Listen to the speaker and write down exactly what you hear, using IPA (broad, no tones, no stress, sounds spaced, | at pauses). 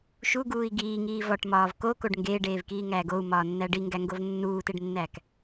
ʃ u ɡ uː i̯ ɡ iː ŋ iː v ɒ ʈ m ɒː v k o k o ɖ ŋ ɡ eː ɖ eː v k iː ŋ æː ɡ o u̯ m ɒː nː æ ɖ i ŋ ɡ æ ŋ ɡ o v nː uː t e ɖ nː æ k